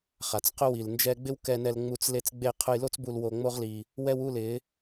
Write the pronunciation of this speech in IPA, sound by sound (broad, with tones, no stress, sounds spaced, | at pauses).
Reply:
χ a˨ t͡s q ʊ˦ w i˨ l n d͡ʒ ɛ˦ ɡ͡b ɪ˦ w k ɛ˧ n ɛ˧ l ŋ͡m u˧ t͡s l e˧ t͡s ɡ͡b e˧ qʰ ʊ˧ j l o˦ t͡s b u˧ l w o˧ ŋ͡m o˦ ʁ l i˧ | w ɛ˧ w u˦˨ l ɪ˨˦